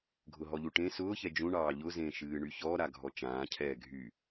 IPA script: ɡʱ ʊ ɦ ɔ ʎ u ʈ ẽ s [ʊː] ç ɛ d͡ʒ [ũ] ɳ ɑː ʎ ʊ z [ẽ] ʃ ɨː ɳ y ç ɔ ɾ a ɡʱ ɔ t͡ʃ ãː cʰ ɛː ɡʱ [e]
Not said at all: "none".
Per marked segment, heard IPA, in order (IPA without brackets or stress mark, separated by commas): ʊː, ũ, ẽ, y